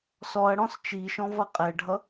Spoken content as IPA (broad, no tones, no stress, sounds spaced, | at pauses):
s ɔ ɐ̯ ɽ ɔ̃ s t͡ʃ i ʃ ɔ̃ v ʌ qʼ ɛ ɖʱ ʌ